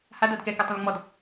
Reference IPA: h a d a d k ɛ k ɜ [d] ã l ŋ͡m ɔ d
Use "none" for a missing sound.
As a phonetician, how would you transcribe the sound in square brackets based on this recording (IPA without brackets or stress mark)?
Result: tˤ